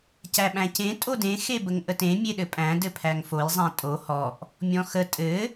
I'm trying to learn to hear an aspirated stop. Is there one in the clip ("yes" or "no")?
yes